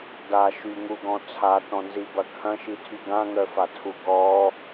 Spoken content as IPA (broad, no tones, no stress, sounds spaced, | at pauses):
d a ʃ y ŋ u ɡ ɔ̃ t͡sʰ a t ɔ̃ n z i b ɐ kʰ ɐ̃ ʃ i tʰ y ɡ ã ŋ œ f a tʰ u ɡ ɔ